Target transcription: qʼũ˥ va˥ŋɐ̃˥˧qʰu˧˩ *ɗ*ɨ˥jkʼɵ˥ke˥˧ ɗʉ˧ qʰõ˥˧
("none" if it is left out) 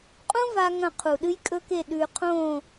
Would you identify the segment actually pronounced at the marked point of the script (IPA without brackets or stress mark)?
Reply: ɗ